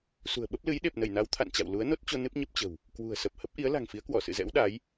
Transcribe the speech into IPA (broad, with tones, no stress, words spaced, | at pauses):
sṳ˨˩ə̯ɓə˦˥p̚ lɨ˨˦jɗe˨˩p̚ nə˧˩jna˨˦w t̪ʰa̰˧˨nt͡ɕa̰˧˨w lu˨˦ə̯no˦˥t̚t͡ɕo˧ nɨ˦˥p̚ɲə˦˥p̚t͡ɕə̤˨˩w | kwṳ˨˩ə̯ sə˨˩p̚hə˦˥p̚ʔi˨˦ə̯ la̤˨˩ŋfi˨˦ə̯kwɔ˧˩ sɨ̰˧˨zɛ̰˧˥w ɗa˨˦j